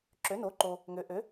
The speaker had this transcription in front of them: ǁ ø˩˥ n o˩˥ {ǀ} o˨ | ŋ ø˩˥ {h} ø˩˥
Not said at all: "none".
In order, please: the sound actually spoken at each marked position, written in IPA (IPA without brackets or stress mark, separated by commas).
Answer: ǃ, ʔ